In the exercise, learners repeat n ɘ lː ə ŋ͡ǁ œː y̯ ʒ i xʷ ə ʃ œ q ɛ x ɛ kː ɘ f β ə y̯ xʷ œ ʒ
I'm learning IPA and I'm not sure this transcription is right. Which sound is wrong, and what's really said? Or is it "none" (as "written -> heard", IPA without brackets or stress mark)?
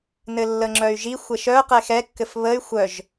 œː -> œ